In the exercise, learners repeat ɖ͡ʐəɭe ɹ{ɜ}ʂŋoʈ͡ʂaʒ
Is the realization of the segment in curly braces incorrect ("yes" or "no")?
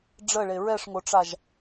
yes